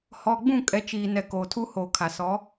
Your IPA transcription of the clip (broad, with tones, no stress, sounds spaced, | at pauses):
h ɔ˨ ɡ͡b ũ˦˨ kʼ ɛ˨˦ t͡ʃ iː˨ n ɛ˨ k oː˨ tʰ u˦ h oː˨ kʰ a˨ s ɔ˨˦